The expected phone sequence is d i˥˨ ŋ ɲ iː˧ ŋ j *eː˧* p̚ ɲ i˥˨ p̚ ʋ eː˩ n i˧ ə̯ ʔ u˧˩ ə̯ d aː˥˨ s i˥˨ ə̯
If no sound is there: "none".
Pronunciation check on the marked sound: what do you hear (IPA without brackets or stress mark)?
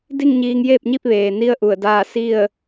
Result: eː˥˨